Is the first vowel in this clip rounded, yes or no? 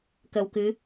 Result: no